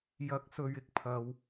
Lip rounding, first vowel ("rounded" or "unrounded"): unrounded